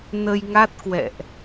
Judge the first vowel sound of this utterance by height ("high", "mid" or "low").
mid